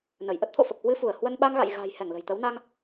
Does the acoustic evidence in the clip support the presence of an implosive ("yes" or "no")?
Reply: yes